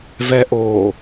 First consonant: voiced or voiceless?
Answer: voiced